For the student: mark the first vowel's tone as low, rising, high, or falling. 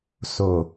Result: low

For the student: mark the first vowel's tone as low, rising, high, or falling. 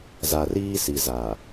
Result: low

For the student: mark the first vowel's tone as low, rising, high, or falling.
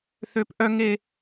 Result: high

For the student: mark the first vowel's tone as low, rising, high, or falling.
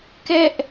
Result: high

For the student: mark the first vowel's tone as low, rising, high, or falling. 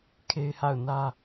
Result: high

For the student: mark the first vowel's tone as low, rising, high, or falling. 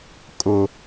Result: low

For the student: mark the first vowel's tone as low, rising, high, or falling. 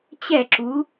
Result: falling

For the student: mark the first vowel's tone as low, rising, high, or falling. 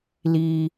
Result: high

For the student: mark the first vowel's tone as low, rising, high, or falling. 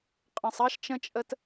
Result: low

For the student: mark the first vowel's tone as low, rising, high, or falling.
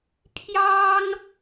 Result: high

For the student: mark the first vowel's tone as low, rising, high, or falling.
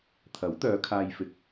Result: rising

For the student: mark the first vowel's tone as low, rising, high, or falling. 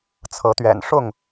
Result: rising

